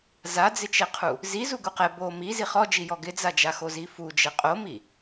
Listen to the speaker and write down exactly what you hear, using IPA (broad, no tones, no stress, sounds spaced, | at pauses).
z a d͡z ɪ t͡ʃ ɛ qʰ u | z i z u ɡ u q ɛ b o m i z i χ ɔ d͡ʒ i j ɔ ɡ ɪ d͡z a d͡ʒ a x o z i f u d͡ʒ ɛ qʼ o m i